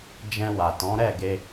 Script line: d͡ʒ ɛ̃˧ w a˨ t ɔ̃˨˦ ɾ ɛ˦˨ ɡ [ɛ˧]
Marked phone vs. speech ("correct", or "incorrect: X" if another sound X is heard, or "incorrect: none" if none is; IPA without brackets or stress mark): incorrect: e˧